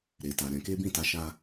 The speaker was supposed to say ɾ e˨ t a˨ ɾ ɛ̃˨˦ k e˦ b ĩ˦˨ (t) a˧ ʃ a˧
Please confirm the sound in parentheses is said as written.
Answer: yes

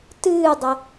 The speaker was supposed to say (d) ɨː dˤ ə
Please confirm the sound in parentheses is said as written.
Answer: no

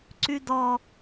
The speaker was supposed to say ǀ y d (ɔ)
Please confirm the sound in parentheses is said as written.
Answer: yes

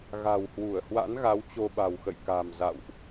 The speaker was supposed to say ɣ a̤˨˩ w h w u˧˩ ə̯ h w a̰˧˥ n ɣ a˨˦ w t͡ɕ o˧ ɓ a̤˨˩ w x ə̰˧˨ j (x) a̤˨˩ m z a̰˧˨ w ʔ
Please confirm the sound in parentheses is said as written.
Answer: no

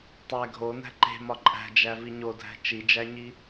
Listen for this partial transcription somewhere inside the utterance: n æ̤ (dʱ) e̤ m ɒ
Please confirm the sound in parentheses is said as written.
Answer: no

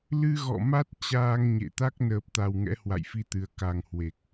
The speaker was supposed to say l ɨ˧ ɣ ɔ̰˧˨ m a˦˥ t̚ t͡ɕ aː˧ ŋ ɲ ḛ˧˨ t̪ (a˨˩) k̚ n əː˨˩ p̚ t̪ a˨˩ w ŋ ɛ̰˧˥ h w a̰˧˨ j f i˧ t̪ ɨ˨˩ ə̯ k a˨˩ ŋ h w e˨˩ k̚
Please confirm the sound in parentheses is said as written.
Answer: no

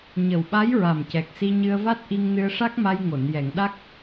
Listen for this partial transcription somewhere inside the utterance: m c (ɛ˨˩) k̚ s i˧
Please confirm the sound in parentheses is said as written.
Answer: yes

